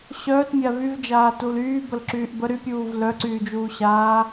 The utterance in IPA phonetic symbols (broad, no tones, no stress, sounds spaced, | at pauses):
ɕ œː t mʲ a v y v d͡ʒ aː t u l yː b ə l ǁ yː ʔ b ə ɾ y pʲ uː v l œ ǀ yː d͡ʒ uː ɕ aː